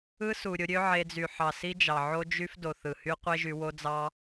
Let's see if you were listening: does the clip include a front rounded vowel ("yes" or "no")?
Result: yes